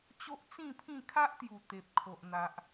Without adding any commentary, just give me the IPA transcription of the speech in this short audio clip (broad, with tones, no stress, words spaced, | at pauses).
t͡ɕo˦ʔt͡sĩ˥˧pʰĩ˥˧ kʰa˦ʔt̪ju˨˩ t̪e˨p̚kʰo˨ʔn̪a˨ʔ